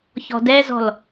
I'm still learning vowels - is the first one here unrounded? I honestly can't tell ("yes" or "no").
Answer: no